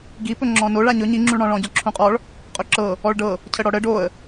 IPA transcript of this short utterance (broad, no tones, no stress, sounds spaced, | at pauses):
ɡ i p ɵ ŋ͡ǁ ɔ̃ n o ɭ a ɲ ɵ ɲ i ŋ͡ǁ ũ ɭ ɽ ɔ̃ ɭ ɔ̃ ɟ ɔ ǁʰ ũ qʼ ɔ ɭ | qʼ ɵ ǁ ɤ | ɔ ɭ ɖ ɤ | cʰ ə ɽ ɔ ɽ ə ɖ o ə̯